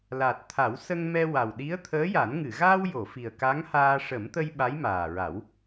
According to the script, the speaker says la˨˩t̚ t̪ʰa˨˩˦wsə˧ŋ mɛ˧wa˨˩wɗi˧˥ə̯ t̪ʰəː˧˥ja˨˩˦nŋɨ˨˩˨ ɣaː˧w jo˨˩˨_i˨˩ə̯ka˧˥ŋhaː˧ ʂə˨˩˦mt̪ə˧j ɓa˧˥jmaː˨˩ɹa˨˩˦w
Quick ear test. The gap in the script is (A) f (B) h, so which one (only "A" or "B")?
A